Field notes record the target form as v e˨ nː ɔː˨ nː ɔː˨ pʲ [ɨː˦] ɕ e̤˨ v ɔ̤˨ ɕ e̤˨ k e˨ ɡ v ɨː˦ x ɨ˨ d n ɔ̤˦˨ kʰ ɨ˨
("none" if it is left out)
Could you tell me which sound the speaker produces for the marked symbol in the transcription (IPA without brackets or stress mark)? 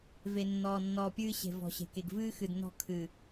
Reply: ɨː˦